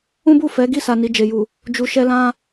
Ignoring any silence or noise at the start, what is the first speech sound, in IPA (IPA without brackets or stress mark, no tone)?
ũ